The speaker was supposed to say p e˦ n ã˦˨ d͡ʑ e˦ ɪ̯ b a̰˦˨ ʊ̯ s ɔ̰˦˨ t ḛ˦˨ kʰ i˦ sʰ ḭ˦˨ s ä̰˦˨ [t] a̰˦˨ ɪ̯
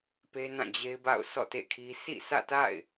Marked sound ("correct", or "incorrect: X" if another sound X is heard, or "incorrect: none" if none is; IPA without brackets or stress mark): correct